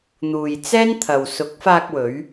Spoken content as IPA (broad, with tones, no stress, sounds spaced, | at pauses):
n̪ uː˨ j t͡s ɛː˥ n t̪ʰ ɐ˨ w s ʊ˨˥ k̚ f aː˧ k̚ w ɵ˨˧ ɥ